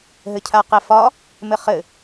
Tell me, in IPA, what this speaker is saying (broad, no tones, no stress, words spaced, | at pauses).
ɦɘcʰaqefɒ | mɘχɘ